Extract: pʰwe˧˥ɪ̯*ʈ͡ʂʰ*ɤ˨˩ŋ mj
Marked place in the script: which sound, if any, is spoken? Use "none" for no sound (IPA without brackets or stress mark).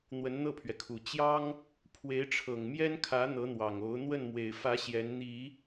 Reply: ʈ͡ʂʰ